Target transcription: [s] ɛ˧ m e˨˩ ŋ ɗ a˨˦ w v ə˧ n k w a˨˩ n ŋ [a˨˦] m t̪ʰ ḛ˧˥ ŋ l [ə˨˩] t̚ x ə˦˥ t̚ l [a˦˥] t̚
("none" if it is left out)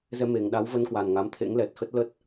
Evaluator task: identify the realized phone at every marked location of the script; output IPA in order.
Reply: z, a˨˦, ɛ˨˩, ə˦˥

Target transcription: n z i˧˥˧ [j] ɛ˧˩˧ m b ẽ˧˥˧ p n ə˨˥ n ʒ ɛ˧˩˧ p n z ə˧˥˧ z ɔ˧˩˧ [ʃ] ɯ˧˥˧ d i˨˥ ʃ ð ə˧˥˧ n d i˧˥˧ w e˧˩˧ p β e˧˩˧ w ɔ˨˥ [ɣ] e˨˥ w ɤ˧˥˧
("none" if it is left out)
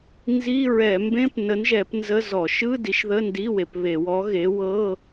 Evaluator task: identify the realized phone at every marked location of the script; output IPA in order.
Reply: ɹ, ʃ, ɣ

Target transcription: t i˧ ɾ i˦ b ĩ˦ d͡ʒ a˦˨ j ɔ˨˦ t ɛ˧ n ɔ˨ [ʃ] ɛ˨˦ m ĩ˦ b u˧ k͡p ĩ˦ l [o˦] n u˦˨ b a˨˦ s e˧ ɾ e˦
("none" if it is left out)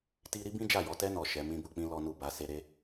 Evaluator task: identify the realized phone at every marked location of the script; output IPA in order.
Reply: ʃ, ɔ˦

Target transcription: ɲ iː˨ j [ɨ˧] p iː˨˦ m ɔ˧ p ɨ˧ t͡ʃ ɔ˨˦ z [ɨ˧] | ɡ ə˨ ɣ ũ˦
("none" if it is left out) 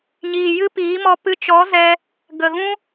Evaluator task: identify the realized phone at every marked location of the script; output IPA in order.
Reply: ɨ˦, ɛ˧

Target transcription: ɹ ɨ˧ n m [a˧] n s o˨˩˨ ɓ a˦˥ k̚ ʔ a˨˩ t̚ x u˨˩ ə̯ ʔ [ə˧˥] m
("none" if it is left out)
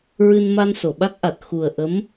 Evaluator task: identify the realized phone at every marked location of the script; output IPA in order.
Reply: a˧, ə˧˥

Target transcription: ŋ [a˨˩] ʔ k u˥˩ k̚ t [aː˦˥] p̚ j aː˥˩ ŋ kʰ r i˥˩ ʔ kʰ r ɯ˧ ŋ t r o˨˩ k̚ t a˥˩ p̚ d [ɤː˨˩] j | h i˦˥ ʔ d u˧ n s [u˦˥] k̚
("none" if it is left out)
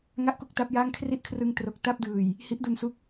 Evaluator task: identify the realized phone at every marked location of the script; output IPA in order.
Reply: a˥˩, a˦˥, ɯː˨˩, u˦˥

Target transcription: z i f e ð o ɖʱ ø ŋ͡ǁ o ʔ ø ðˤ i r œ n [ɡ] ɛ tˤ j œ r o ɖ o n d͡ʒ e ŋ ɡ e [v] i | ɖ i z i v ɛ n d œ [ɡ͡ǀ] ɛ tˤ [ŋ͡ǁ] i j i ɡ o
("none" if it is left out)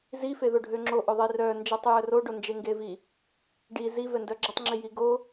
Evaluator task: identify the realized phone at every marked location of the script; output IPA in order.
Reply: d͡ʒ, v, ɡ͡ǁ, ŋ͡ǁ

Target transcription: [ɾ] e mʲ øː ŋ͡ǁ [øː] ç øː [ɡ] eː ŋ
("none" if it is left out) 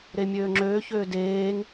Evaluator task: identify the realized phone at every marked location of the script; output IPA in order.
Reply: ɾ, øː, d

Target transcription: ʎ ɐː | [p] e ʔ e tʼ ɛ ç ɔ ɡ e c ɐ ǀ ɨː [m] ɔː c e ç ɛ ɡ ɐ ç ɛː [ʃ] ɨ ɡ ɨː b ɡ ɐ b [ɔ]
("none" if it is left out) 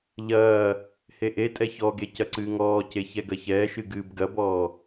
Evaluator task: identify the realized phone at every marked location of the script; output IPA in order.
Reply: h, ŋ, ʃ, ɔː

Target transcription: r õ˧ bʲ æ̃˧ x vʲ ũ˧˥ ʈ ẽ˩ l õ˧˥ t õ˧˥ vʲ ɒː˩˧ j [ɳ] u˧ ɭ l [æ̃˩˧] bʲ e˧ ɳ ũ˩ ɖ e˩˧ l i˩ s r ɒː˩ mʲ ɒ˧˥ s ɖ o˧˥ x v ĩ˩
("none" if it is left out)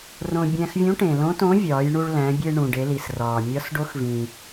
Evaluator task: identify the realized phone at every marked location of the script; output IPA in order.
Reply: ɳ, æ̃˩˧

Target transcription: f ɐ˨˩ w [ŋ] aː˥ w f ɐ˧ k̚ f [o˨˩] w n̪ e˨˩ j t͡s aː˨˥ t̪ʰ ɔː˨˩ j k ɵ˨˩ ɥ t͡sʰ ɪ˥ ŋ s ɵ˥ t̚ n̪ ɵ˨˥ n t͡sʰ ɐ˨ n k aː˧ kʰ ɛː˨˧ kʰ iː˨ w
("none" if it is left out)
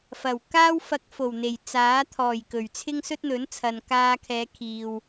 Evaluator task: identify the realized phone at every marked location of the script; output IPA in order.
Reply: k, o˨˩

